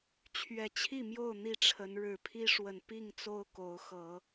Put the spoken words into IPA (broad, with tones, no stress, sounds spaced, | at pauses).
t͡ɕʰ ɥ ɛ˨˩ t͡ɕʰ i˥˨ m j o˥˨ ʊ̯ n̪ i˥˨ ʈ͡ʂʰ ə˨˦ n ɻ ɻ̩˨˩ pʰ i˦ ʂ w ə˨˩ n p i˥˨ ŋ t͡s o˦ ʊ̯ k o˨˦ ʊ̯ x ɤ˨˦